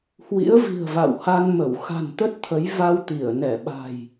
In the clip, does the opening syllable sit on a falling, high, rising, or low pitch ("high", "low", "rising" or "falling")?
rising